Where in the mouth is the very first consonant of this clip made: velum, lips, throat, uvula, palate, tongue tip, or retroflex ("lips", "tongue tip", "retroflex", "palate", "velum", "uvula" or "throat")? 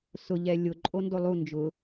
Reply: tongue tip